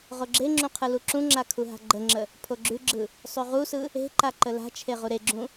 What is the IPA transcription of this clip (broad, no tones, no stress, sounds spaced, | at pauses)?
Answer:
ʁ o ɡ͡ǁ e ŋ͡ǁ ũ qʰ ɯ l u ǁ ũ ŋ͡ǁ a kʰ u ɦ a̤ ɡ͡ǃ ə ŋ͡ǁ ə | pʰ o ɡ͡ǁ ʉ ɡ͡ǁ ɯ | sˤ ʉ ʁ u s ɯ | e̤ ǃ a ǃ ə l a̤ t͡ʃʰ e ʁ u ɾ e ɡ͡ǁ ũ